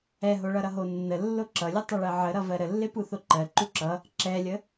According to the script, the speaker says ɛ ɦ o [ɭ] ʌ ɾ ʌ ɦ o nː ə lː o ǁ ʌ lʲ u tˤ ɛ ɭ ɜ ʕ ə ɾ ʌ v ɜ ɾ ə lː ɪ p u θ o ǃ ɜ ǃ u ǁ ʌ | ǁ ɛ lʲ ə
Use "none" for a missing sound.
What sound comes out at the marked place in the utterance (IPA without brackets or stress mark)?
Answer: ɭ